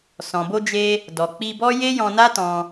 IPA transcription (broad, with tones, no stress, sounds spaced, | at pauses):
s ɔ̃˨ b o˧ d͡ʒ e˧ | d ɔ˨ k͡p i˧ b ɔ˦ j e˦ j ɔ̃˧ n a˦ t ɔ̃˧